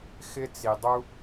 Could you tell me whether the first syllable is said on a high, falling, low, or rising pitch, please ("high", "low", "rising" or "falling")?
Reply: high